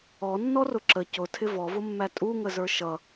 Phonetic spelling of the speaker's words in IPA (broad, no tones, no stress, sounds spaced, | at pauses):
ɔ nː ɔ r ʊ ǁ ə c ʊ tʰ ɪ v ɔ v ʊ mː æ tʼ u ŋ ə z ə˞ ʃ ʌ